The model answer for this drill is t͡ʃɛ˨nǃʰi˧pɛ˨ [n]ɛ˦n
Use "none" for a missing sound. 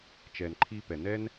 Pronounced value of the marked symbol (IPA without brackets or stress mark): n